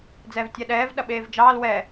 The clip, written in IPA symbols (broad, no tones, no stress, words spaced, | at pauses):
d͡zɛːvtʲɛɗɛːv ɗɐɓeːvd͡ʒɑːl wɛ